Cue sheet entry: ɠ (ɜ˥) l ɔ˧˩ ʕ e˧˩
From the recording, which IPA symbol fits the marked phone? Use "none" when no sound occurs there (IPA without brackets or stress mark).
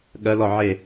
ɜ˩˧